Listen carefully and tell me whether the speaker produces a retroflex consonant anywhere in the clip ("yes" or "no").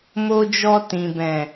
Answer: no